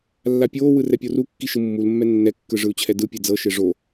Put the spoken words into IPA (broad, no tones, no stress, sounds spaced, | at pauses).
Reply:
lː a pʲ oː w ɯ r ɛ pʲ o r u kː i ʃ ɯ mː u l mː ɛ nː ɛ kː ɯ ʐ ɯ u̯ t͡ɕʰ ɛ d ɯ pʲ e d͡z ɤ ʃ e ʐ o